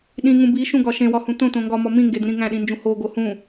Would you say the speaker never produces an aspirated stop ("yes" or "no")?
yes